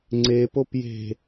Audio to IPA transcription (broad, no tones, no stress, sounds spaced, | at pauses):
ŋ͡ǀ e p o p j e̤